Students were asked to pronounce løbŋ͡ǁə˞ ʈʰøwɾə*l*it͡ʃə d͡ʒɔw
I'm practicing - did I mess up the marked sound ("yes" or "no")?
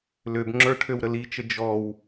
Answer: no